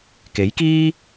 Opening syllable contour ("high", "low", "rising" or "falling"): rising